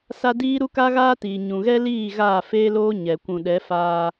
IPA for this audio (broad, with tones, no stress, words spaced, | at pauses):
sa˦ diː˦ ɾu˦ka˦ɣaː˦tiː˨ ɲũ˨ɣɛ˦liː˦˨ ɣaː˦˨feː˦loː˦ ɲɛ˨ kʷũ˨ɗɛ˨˦faː˦